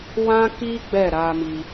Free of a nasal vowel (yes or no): no